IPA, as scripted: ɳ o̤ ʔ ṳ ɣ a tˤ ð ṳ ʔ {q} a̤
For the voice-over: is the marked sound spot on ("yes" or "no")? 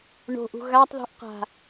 yes